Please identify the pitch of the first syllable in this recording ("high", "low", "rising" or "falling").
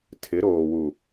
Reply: rising